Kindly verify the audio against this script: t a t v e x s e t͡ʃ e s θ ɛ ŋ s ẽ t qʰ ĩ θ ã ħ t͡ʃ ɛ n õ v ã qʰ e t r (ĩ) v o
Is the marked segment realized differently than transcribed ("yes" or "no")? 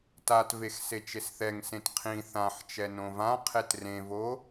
yes